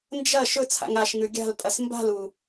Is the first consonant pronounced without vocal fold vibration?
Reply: no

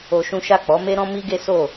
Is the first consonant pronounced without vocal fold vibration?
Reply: yes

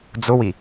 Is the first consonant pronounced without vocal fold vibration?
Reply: no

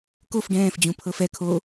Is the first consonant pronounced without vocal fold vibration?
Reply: yes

